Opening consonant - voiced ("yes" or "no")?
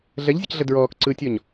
yes